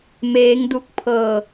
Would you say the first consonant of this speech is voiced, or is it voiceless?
voiced